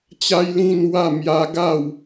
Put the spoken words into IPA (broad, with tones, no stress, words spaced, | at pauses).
t͡ɕa˦jlĩ˥˧n wa˥˧ mja˦ ɡa˥˧w